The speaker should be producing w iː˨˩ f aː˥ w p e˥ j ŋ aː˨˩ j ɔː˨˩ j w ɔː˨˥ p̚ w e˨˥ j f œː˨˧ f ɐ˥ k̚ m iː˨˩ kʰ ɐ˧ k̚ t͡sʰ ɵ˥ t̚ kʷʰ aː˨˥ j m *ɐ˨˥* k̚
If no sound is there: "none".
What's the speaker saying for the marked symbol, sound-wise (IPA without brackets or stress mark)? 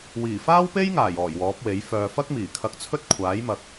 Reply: ɐ˨˥